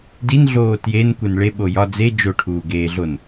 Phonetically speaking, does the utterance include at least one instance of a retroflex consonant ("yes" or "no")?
yes